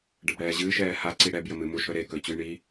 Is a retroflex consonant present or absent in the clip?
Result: present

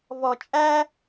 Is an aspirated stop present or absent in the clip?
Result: absent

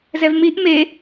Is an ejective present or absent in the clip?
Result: absent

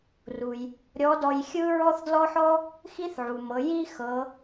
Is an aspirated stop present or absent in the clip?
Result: absent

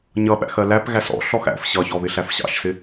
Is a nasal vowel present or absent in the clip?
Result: absent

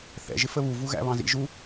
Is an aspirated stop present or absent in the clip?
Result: absent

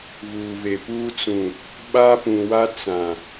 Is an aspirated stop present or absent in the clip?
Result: absent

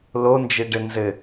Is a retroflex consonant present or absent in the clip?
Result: present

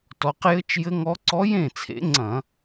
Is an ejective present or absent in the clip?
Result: absent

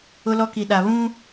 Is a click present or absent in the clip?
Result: absent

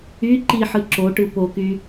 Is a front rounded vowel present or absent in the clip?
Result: present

